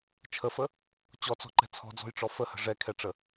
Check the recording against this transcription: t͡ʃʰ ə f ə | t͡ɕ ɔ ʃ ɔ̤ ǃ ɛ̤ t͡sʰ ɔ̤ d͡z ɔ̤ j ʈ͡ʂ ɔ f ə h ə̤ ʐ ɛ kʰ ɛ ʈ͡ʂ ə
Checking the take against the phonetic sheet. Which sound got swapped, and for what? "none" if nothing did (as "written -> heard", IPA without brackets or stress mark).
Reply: ʃ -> t͡s